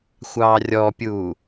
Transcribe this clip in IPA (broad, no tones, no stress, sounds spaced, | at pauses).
xʷ ɑː rʲ ɔ pʲ uː